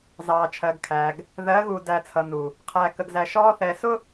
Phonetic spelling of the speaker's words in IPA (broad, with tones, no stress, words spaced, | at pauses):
zɑː˨t͡ʃʰɜ˨ɡkʰæ˨ɡ | ðɜ˨˦ɣu˨ dæ˨ t͡sʰʌ˨nu˨ | qʰæ˨kə˨ɡzæ˨ ʃɔː˦ θɛ˨sʊ˦